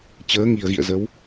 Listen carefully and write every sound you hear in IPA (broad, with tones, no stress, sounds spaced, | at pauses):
t͡ɕ əː˨˦ ŋ i˨˩ ə̯ ɣ ḭ˧˨ ə̯ z ə˨˦ w